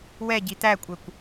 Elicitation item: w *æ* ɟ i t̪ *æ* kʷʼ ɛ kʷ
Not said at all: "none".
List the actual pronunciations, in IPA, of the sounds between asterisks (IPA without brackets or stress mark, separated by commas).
ɛ, æ